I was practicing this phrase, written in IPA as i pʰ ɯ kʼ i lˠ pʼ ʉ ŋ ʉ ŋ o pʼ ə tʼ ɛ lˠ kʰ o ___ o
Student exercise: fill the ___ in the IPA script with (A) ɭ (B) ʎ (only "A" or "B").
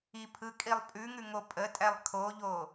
B